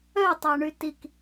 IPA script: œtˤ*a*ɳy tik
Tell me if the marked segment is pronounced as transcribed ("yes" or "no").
yes